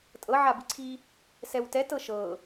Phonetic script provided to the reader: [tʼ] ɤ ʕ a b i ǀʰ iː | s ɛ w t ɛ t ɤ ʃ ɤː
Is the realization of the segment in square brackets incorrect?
no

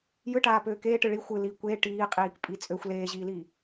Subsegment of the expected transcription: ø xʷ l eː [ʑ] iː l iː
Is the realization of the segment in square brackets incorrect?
no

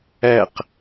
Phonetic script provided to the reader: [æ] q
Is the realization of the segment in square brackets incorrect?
no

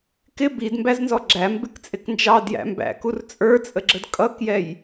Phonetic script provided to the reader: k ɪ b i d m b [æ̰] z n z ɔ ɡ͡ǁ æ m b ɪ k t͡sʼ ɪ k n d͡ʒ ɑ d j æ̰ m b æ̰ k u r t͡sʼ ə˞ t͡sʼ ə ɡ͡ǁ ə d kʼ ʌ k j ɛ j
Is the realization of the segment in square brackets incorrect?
yes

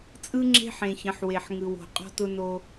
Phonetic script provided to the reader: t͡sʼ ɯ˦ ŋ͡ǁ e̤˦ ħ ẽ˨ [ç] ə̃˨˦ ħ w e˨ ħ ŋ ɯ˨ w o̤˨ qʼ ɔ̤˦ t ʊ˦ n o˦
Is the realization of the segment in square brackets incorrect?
no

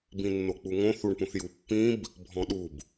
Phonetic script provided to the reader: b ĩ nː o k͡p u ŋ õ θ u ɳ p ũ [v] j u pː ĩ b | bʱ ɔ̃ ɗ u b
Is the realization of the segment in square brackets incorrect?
yes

